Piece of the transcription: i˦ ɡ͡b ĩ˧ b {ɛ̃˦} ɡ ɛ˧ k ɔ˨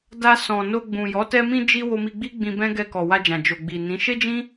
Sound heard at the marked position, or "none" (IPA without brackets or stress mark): ɛ̃˦